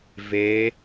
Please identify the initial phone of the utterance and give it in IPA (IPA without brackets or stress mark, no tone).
v